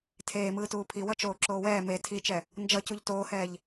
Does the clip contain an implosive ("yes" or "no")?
no